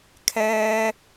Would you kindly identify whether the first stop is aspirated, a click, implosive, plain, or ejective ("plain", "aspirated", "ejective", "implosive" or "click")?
aspirated